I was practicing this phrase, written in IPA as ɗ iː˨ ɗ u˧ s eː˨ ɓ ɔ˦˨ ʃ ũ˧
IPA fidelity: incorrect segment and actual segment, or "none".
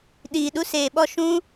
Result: none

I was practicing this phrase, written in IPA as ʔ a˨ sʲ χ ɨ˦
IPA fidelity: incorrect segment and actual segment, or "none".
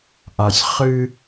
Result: none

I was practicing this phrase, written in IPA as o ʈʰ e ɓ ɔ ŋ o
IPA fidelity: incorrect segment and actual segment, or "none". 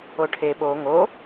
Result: ɔ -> o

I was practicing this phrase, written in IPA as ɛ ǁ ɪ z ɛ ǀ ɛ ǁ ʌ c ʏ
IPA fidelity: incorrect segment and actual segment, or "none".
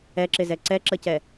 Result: ʏ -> ɛ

